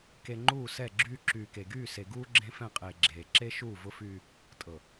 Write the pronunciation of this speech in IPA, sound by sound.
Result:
ke˨ ŋ͡ǃuː˦˨sɛ˦˨ɡ͡ǁyː˦ ǁyː˨ke˨ ɡyː˦˨se˨ɡuː˦ ɡ͡ǁẽ˦fɛ̃˦˨qʼeː˨ ɡ͡ǁeː˨ ǁe˦ʃuː˦˨ vʊ˦fyː˦ | tʼɤ˨

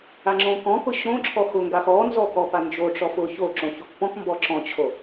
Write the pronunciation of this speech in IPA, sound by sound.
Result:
aŋ͡ǁõkɔ̃kʊ ɕõǁʰɔ xʊŋɡax ɔnzɔ kɔpand͡ʒoʈ͡ʂɔf ʊ ço ǁõçokpɔ̃kmbɔ ǁɔ̃t͡ɕʰo

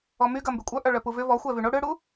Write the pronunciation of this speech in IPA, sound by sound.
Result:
ɔmy ɡɐmbykʷʼœ ʔœɭœpuvʏ vɔxʷɛ vyɳo ɽʏɽu

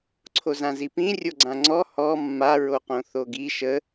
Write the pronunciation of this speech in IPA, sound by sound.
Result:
ǀʰozãzipĩ rʲoɡ͡ǀãŋ͡ǀɔ hɔ mːaɹoqõ θoɡi ʃə

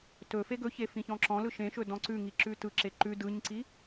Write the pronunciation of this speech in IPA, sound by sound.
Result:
tɵ feɡɵçe fĩçɔ̃ǁɔ̃lɯ ʃẽʃɵ dɔ̃ǀʉŋi ǁʉtɯǁe ǃʉ dɯɲǀi

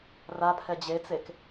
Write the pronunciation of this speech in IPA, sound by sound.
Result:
rapʰɛ d͡ʑet͡sek

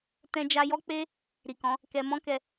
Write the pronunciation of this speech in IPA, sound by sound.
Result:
tɛ̃˧d͡ʒa˧jɔ˦k͡pe˦ | ɾi˨kɔ̃˨˦ | kɛ˧ mɔ̃˦kɛ˧

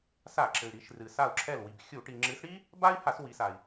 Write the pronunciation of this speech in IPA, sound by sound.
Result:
sa˧˩˧ǁɘ˩y̯ɾi˩˧ʃ rɨ˩ sa˧˩u̯ǁʰɛ˧˩lwi˩b xʲu˧˩˧ʈi˩ŋ͡ǁɨ˨˥s ɽi˥ | ba˥i̯ ha˧˩˧swi˩˧sa˩i̯

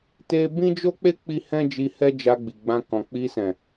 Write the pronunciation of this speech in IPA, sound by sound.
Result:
te˦ bĩ˦d͡ʒo˦k͡pe˦ k͡pi˦hɛ̃˦d͡ʒi˧ hɛ˦d͡ʒa˧ɡ͡bi˨ɡ͡bã˧ kɔ̃˨k͡pi˧sɛ̃˨

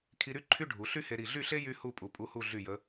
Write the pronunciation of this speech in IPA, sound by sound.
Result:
kʰi˧ɾy˥˧ ǃʰy˥ ɖʱu˩˧ ɬy˥he˧ ɾi˧˩ɮy˥˧ɬe˥ jy˥hu˥˧pʼu˧˩ pʼu˥˧hu˥˧ ɮy˧˩jə˩˧

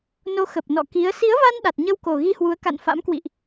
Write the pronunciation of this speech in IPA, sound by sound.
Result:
no˨˦ xə˨˩p̚nɔ̰˧˨ ki˨˦ə̯ si˨˦ə̯va˧n ɗa˨˩t̚ɲə˧wko˨˩ ɣi˧hwu˨˦ə̯ka̰˧˨n fa̰˧˥mkwḭ˧˨ʔ

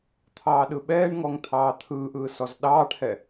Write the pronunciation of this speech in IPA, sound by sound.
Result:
t̪ʰɑːɗɯɓɛːɳŋɔŋ t̪ʰɑːt̪ʰɯːʔɯː sɔzɗɑːʈhɛ

